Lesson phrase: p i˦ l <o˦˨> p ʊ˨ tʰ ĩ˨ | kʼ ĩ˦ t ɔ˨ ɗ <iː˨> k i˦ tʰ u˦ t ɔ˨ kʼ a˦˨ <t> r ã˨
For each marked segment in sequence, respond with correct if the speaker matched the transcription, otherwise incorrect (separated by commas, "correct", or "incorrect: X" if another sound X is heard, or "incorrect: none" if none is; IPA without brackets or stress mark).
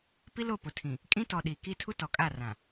correct, correct, incorrect: none